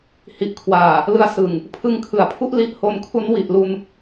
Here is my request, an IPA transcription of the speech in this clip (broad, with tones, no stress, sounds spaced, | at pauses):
h i˨˩ ʔ kʰ w aː˨˩ | l ɯ˧ a̯ s ɯ˨˩ ŋ | pʰ ɯ˧ ŋ kʰ ɯ˩˦ a̯ pʰ u˥˩ ʔ l i˦˥ ʔ h o˧ n kʰ u˦˥ n w i˨˩ ʔ l u˧ n